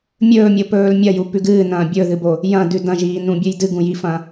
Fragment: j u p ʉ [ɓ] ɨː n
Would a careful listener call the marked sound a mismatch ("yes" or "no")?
yes